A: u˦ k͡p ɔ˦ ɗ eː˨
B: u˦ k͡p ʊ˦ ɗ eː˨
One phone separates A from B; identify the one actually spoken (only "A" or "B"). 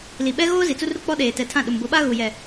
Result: A